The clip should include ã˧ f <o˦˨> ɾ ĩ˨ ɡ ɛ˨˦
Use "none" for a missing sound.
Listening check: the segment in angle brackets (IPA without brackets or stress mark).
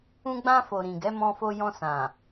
o˨